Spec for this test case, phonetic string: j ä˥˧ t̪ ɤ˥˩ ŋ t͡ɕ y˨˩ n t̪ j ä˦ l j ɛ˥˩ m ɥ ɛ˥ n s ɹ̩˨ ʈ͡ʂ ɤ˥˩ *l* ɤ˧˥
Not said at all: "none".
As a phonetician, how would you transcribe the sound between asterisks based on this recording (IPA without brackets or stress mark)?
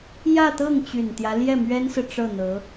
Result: n̪